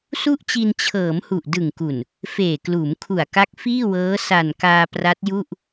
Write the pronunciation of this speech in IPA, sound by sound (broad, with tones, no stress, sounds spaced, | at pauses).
s u˥˩ ʔ t͡ɕ i˧ n t͡ɕʰ ɤː˩˦ m h u˨˩ ʔ d ɯ˨˩ ŋ k u˨˩ n | f eː˨˩ k l uː˩˦ m kʰ u˨˩ a̯ k a˦˥ k̚ f iː˥˩ w ɤː˦˥ s a˨˩ n k aː˧ p r a˦˥ t̚ j u˥˩ ʔ